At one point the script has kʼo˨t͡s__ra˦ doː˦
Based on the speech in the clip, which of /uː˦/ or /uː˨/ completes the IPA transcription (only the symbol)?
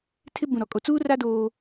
uː˦